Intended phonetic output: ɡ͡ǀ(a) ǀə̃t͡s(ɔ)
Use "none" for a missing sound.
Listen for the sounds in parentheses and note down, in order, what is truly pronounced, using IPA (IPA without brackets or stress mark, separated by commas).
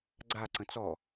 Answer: a, ɔ